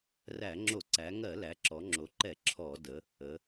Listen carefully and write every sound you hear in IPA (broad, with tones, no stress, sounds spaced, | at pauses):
r æ˧˩˧ ŋ͡ǁ o˧˩˧ ǀ æ˩˧ ŋ ɜ˧˩˧ l æ˩˧ ǁ ɔ˩˧ ŋ͡ǁ o˩˧ ǃ ɛ˧˩˧ ǁʰ ɔ˧˩˧ d ə˩˧ | ə˩˧